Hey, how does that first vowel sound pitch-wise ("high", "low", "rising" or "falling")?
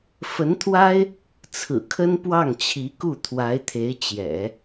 rising